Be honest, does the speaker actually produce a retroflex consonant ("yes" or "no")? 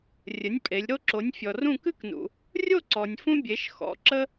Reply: no